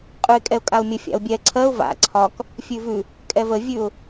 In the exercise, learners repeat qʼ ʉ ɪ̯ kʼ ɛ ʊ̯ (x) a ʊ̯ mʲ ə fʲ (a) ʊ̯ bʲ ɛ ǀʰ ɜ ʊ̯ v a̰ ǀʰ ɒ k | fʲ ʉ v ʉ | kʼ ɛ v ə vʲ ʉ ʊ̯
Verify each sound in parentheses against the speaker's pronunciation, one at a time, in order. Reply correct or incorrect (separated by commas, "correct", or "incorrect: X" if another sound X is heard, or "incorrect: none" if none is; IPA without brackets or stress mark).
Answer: incorrect: kʼ, incorrect: a̰